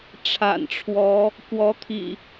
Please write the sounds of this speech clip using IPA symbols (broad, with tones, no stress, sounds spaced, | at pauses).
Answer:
ʈ͡ʂʰ a̰˨˩ n ʈ͡ʂʰ w ɔ˨˦ | k w ɔ˨˦ t̪ʰ ḭ˨˩